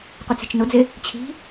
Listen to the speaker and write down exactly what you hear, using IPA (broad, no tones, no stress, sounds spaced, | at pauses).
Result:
qʷ ɪ t͡s i̤ t͡ʃ n ʊ d͡z ɪ | t͡ɕʰ i̤